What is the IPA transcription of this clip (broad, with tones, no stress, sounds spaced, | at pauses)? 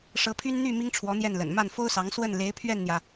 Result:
ʂ ɤ˧˥ pʰ y˥ n n̪ y˥˩ m i˥ ŋ ʈ͡ʂʰ w ɔ˧˥ n̪ j ɛ˥˩ n l ə̰˨˩ n m a˥˩ n f o˥ ʊ̯ s ɑ˧˥ ŋ s w ə˥˩ n l e˧˥ ɪ̯ pʰ ɥ ɛ˥˩ n n̪ j ä˩